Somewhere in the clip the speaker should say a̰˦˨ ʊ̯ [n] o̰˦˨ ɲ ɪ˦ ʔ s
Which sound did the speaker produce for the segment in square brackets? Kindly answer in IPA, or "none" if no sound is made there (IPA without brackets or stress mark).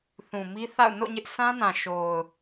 n